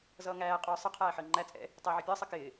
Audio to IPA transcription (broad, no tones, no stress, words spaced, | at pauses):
zʌːŋæː qʼʊːsˤə qʰæːħəːŋ͡ǃæ t͡sʼɛ̰ | tˤɪːʕɪpʲəː sˤɪkɪː